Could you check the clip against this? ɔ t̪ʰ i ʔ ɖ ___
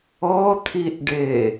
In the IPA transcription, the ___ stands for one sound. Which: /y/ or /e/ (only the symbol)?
e